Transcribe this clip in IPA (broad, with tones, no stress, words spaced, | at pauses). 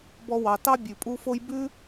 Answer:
bɔ˦wɑ˨ tɑ˥bʲʉ˩pʼu˦fo˥j bʉ˥